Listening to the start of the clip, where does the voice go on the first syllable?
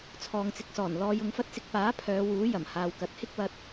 low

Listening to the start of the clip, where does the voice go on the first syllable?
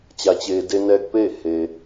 low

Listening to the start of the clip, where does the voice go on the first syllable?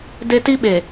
high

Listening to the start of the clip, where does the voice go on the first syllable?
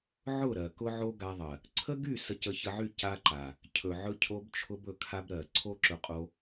falling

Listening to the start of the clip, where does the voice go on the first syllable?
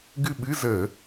falling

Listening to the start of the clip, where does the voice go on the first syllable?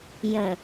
low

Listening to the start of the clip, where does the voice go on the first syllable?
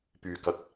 low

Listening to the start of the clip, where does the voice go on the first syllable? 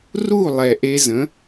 falling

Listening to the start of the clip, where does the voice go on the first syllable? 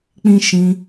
high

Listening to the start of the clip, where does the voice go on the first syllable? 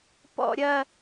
falling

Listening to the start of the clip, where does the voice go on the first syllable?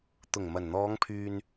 low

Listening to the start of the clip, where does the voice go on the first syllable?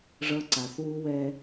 high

